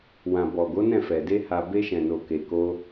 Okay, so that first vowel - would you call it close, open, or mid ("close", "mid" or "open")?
open